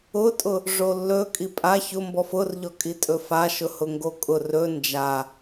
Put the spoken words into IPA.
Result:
ʊ tʼ ʊ | ʐ o lː ɵ kʼ i pʼ a ç ʊ m b ɔ f ʊ r ʎ ɔ kʼ i tʼ ɵ f a ʃ ʊ h ʊ ŋ ɡ o kʼ ʊ r ɵ n d͡ʒ a

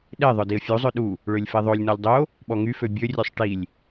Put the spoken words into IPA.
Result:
ɗ e ðˤ œ d i ə̯ fʲ u zˤ ø ɗ u | ɭ ø lʲ f e ðˤ o lʲ n ɔ lʲ dˤ o | ɓ ɔ ŋ y f ø bʲ ø rʲ ø sˤ ʈ i lʲ

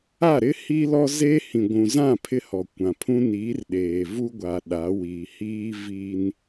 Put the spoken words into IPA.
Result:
a˦˨ ɾ ɪ˦ h iː˦ l ɔ˦ z eː˦ h ĩ˨ ɡʷ ũ˨ z ã˦˨ pʰ ɪ˦ h ɔ˨ kʷ ã˨ pʰ ũ˦ n iː˨˦ r ɗ eː˨ v u˦ ɡʷ a˨ ɗ a˨˦ w i˨ h iː˦ v i˦ n

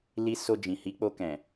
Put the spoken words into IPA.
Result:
l i˧ s o˧ d͡ʒ ĩ˨ h i˨˦ k͡p o˧ k ɛ̃˨

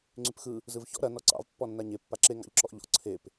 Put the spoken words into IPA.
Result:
ŋ͡ǀ y p x ɯ | z ɯ v ç ɔ̰ ɾ ɐ n ɔ ǀ ɑ̰ v pː ɔ nː a ɲ e pː a ǁ e ŋ ɑ̰ ʎ ǁ ɔ ʔ ʎ ɔ̰ ǀʰ e p

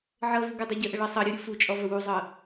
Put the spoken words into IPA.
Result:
ʕ ɤ v u ɡ ʊ dˤ ɤ ɟ ə ʔ ə ɭ ɤ sˤ ɤ ɾʲ u ɾʲ u f u t͡ʃʼ ɔ v ə w u zˤ ɤ

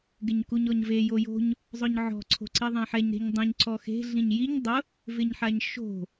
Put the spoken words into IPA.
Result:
ɡ ɪ ɲ k u ɲ ɔ ɲ v e j o j o̤ ɲ | zˤ ʊ ɲ ʕ ɔ̤ ǀʰ o̤ ǀ i ðˤ ẽ ħ ɛ ɲ ɾ e̤ ɲ dˤ ũ ɲ ǀ ɔ x e̤ ɮ ĩ ɲ j i ɲ dˤ ʊ | v ɪ ɲ ħ a ɲ ʃ o̤

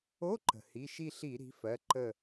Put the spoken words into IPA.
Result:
o˧˥˧ ǃ ə̤˩ h i˩˧˩ ʃ i˦˨ ɬ i˧˩˧ ɾ i̤˩˥ f ɜ˩˧˩ ǃ ə˦˨

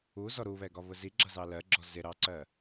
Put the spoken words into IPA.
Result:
u z ɔ ɾ u β ɛ ɡ ɒ β ʊ z i ɡ͡ǁ ʌ z ɑ l ɜ ɡ͡ǁ ɔ z ɪ ɾ ɑ ǀ ɜ

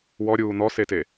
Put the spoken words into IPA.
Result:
w ɔ ɾʲ uː n̪ ɔ s e t e

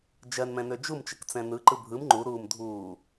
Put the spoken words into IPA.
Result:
d͡ʒ ɜ n m ɛ̃ n ø d͡ʒ u m t͡ʃ ə k t͡s ɛ̃ n ɯ ǃ ɯ bʱ ɯ m ŋ͡ǃ u ɾ uː m dʱ uː

